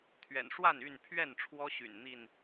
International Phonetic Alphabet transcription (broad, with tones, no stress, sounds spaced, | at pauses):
t̪ʰ ɥ ɛ̰˨˩ n ʂ w a˥˨ n y˥˨ n pʰ ɥ ɛ˥˨ n ʈ͡ʂʰ w ɔ˦ ɕ y̰˨˩ n n̪ i˥˨ n